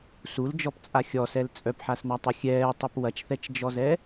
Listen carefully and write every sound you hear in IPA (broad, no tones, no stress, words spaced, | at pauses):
suld͡ʒɔpt͡sʼa xʲɔsɛl t͡sʼœpħasnatˤu xʲɛːtˤɛp wɐt͡ʃθɛt͡ʃd͡ʒɔzɛ